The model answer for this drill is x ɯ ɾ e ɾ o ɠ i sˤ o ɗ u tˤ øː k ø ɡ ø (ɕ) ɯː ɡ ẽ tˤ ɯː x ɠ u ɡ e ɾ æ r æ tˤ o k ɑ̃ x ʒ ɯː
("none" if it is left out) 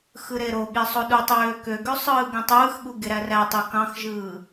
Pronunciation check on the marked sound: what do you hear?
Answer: sˤ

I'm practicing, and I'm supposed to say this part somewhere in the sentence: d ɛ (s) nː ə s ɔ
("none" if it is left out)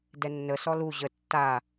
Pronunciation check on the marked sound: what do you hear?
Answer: none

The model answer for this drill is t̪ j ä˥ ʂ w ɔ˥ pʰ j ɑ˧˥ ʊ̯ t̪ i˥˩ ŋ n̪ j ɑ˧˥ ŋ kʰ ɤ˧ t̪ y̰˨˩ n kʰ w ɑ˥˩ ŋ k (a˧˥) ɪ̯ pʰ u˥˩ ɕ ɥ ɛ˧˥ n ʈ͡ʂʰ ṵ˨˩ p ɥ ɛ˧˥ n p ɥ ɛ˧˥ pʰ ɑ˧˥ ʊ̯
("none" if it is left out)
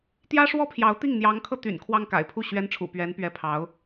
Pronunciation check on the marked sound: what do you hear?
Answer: a̰˨˩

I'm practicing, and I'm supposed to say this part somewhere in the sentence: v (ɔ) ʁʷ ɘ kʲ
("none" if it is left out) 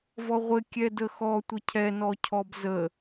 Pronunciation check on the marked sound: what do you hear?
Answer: ɔ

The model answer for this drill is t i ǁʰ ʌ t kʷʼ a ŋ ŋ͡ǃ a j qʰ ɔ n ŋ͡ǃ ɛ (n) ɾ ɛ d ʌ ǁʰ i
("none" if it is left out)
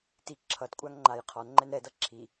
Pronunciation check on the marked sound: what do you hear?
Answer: n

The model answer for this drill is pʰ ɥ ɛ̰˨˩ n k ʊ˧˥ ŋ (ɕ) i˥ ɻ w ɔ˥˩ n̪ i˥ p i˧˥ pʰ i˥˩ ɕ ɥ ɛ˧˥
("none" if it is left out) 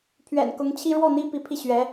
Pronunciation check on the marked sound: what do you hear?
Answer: t͡ɕʰ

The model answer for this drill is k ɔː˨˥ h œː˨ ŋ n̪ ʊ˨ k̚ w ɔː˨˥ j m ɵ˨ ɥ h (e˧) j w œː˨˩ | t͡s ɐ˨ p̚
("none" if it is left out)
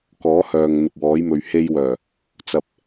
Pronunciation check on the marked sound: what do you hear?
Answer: e˧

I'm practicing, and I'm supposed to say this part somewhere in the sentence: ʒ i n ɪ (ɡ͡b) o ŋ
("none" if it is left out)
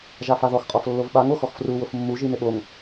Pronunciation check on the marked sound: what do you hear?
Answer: ɓ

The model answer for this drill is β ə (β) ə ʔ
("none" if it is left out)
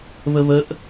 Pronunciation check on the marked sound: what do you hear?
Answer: β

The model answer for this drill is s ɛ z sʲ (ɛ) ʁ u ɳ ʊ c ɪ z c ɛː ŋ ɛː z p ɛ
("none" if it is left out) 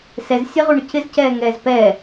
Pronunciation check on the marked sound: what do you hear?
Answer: ɛ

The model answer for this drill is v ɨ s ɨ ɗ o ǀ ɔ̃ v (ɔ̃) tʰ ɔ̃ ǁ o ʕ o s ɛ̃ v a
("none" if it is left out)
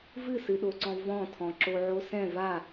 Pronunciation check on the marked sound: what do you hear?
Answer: ɔ̃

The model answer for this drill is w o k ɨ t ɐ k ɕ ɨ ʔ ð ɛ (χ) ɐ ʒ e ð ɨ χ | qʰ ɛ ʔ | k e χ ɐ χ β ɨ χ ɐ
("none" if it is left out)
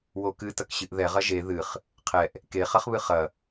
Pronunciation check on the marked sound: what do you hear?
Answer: ʁ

